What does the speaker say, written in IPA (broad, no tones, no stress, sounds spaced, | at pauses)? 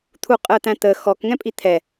t̪ʰ u qʼ əː t̪ æ̃ t̪ əː x ɔ k ŋ ɛ̃ pʼ i t̪ʰ ɛ